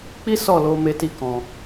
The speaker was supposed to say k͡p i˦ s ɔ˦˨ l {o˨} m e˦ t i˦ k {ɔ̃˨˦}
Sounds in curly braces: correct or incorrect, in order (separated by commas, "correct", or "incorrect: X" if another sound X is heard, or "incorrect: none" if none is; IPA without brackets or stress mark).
incorrect: o˧, incorrect: ɔ̃˧